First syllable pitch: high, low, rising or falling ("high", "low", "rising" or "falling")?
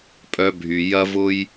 low